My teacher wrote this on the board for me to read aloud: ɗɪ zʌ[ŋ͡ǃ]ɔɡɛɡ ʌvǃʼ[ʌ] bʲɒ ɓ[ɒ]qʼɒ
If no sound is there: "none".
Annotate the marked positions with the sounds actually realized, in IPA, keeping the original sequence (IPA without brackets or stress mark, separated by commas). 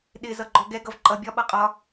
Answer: ɡ͡ǃ, ʌ, ʌ